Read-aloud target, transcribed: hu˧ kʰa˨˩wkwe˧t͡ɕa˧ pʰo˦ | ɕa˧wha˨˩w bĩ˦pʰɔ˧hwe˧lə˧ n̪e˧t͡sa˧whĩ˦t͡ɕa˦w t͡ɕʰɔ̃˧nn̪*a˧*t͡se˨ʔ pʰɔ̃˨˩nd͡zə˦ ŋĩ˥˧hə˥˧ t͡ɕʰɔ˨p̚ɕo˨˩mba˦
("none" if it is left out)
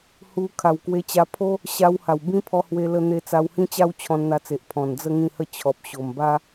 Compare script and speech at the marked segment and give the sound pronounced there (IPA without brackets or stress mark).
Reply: a˧